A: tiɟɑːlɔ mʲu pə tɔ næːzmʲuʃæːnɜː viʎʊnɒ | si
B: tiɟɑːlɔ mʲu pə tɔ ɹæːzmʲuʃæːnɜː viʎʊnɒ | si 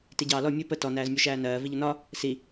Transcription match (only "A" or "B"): A